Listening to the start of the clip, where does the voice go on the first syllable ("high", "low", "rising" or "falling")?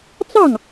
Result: falling